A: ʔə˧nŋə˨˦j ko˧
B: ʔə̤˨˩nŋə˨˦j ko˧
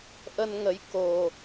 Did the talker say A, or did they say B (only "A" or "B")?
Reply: A